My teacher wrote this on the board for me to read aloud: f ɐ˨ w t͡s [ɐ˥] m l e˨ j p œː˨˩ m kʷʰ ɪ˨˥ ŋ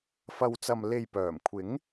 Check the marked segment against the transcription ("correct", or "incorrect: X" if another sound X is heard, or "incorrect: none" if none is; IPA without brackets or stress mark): incorrect: ɐ˨